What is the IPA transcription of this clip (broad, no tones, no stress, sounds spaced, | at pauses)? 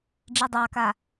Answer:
ɖ͡ʐ i dˤ ɑ k a